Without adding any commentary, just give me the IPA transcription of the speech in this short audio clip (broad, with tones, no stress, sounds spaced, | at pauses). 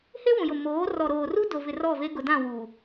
h e˦ w ũ˨ j ʊ˨ m oː˨˦ r ɔ˨ ɾ oː˨ r u˦ d o˨ v ɪ˨ r ɔ˦˨ v e˦ ɡ ʊ˨ d ã˦˨ w uː˨